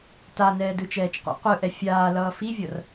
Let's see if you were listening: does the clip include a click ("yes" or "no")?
no